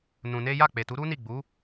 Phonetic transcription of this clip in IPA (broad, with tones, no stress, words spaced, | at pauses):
nũ˧ne˦ ja˦˨k͡pe˨tu˨˦ ɾu˦ni˦˨ ɡ͡bu˨˦